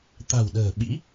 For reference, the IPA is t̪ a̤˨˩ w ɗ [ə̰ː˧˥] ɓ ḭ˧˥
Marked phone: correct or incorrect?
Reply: incorrect